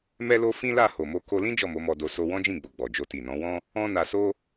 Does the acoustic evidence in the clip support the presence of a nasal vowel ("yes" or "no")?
yes